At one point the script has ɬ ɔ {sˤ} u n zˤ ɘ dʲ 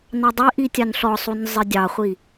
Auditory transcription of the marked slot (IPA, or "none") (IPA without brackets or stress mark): sˤ